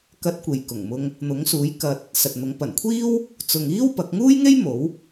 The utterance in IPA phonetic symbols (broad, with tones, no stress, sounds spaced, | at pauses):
k ɐ˧ t̚ kʷ e˨ j k ʊ˨˩ ŋ m ʊ˧ ŋ | n̪ ʊ˨˥ ŋ s uː˨˥ j k ɐ˧ t̚ | s ɐ˨ t̚ n̪ ʊ˨˥ ŋ p ɐ˨˩ n kʷʰ iː˥ w | t͡s ʊ˨ ŋ iː˥ w p ɐ˨˥ k̚ ŋ uː˥ j ŋ e˥ j m o˨˥ w